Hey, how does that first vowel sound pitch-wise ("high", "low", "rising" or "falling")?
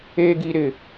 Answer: high